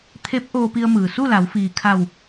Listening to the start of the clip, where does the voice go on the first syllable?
rising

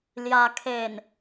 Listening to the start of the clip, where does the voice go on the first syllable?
low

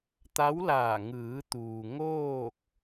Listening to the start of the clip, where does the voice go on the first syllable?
rising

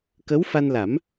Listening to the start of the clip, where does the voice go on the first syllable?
rising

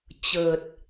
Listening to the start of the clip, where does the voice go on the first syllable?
low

